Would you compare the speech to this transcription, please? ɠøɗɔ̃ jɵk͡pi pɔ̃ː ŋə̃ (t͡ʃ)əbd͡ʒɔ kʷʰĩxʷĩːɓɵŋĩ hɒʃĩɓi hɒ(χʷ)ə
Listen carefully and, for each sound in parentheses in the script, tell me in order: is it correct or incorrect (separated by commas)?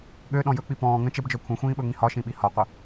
correct, incorrect